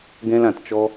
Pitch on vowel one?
high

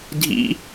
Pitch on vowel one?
high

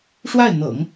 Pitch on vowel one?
falling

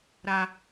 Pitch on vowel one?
low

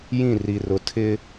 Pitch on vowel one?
falling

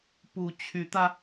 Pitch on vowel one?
rising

